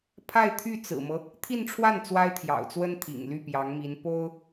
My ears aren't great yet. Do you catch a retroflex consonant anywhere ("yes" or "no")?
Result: yes